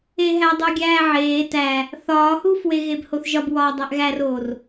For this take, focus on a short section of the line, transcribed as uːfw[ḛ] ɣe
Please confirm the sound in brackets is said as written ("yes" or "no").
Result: no